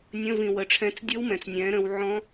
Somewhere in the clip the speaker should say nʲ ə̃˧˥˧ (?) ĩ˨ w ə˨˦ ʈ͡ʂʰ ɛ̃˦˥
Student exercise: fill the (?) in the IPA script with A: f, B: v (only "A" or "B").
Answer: B